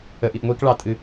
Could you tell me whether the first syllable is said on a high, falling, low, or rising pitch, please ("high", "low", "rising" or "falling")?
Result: low